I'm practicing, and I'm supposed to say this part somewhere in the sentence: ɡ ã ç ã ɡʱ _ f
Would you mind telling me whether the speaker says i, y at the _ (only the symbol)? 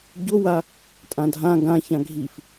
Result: i